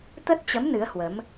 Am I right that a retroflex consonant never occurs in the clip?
yes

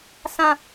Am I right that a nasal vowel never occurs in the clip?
no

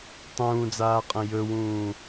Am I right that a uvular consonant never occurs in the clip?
no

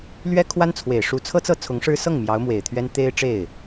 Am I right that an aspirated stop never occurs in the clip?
no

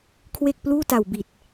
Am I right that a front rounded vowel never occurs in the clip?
yes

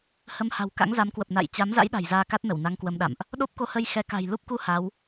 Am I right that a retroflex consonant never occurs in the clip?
yes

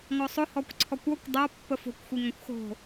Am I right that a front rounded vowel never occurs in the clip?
yes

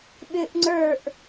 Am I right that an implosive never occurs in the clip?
no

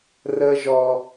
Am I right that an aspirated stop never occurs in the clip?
yes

